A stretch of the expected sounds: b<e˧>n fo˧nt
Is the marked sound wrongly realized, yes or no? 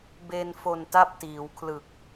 no